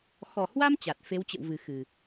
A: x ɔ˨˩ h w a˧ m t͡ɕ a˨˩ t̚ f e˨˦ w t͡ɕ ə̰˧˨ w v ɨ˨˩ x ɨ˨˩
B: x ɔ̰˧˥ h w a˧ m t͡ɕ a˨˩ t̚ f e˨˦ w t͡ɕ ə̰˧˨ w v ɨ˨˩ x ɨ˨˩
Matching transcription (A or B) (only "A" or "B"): A